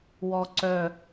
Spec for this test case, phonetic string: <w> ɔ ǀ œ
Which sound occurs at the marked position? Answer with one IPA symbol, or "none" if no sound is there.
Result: w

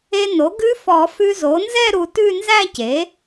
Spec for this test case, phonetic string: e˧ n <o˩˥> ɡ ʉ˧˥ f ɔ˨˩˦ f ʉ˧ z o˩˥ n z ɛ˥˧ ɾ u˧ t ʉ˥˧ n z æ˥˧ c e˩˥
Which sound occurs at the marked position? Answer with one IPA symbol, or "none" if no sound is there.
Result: o˩˥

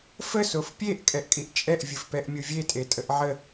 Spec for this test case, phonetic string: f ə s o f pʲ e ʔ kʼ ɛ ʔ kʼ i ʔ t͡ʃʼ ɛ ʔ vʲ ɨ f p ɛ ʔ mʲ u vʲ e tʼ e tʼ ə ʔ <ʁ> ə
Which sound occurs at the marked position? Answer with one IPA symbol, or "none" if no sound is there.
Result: ʕ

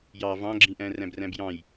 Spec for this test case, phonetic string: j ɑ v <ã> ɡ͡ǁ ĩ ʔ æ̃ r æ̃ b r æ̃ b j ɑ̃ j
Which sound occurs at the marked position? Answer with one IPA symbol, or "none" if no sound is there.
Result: ɑ̃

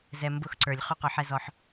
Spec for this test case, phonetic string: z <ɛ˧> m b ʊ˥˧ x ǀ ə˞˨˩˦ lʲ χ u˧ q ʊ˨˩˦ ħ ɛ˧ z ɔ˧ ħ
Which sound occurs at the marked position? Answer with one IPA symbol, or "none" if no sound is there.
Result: ɛ˧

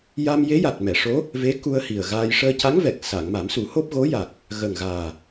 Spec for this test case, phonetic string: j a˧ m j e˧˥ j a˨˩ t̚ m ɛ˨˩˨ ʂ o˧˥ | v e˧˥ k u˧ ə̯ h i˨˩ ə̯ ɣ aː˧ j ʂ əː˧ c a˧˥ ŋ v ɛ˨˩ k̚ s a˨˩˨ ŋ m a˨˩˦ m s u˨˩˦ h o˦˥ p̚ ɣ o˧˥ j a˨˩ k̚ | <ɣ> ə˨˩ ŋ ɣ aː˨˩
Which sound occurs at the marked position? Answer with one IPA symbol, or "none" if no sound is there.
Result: ɣ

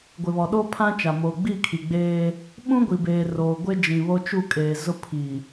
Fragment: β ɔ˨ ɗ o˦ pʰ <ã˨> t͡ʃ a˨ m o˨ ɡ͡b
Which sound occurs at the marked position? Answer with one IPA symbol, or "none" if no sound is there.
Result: ã˦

